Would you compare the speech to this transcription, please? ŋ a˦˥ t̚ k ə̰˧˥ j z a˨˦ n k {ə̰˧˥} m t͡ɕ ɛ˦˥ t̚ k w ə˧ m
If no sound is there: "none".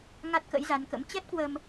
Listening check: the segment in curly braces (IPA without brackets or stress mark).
ə̰˧˥